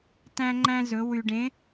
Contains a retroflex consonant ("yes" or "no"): yes